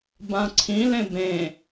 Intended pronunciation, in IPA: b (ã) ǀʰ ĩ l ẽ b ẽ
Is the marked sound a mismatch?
no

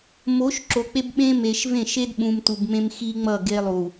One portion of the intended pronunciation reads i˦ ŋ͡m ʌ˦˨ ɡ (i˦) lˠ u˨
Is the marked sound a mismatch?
yes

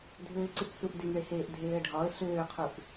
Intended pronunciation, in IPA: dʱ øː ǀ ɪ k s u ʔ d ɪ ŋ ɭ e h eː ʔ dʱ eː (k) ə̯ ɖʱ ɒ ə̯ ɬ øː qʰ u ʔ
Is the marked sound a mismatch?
yes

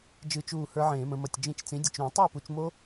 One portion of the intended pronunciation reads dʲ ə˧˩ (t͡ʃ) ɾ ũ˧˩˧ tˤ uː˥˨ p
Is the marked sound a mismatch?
no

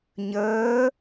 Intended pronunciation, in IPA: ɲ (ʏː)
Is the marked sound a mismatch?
yes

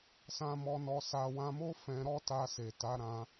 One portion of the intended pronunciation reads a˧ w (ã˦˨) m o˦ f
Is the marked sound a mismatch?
yes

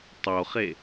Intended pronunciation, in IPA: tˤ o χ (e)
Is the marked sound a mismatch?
no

